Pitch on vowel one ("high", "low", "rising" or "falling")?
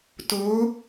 rising